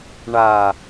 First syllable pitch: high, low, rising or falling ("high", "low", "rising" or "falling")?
low